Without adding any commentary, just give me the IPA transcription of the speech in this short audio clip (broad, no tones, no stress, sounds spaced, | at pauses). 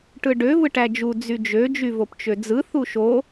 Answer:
ʈ ɯ ɖ ø v ɯ ʈ æ d͡ʒ u d͡z y d͡ʒ ø d͡ʒ y v o p t͡ʃ ø d͡z ɯ θ u ʃ o